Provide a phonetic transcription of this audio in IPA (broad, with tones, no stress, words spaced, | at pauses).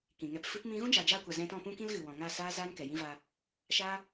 kĩ˨ŋɛ˧pfɨ˦p mĩ˦ ɣũ˦d͡ʒaː˨d͡ʒaː˧kʷa˨ zɛ̃˧tɔ̃˦˨pũ˦ kĩ˦lɣɨ˨wɔ̃˨ŋa˦˨ saː˦ zaː˦nkɛ˨jĩ˦va˧ | ʃaː˦